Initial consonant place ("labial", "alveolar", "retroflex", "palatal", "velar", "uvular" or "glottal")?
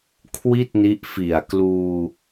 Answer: velar